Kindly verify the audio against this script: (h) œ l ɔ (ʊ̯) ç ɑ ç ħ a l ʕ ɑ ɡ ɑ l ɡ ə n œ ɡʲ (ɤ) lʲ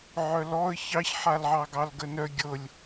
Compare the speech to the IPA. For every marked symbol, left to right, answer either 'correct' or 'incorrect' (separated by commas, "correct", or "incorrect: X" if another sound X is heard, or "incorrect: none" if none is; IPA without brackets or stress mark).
incorrect: ʕ, incorrect: ə̯, correct